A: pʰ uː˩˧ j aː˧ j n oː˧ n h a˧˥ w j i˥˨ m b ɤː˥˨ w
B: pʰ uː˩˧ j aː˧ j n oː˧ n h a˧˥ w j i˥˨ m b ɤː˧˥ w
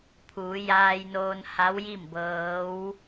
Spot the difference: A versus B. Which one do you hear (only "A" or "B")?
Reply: B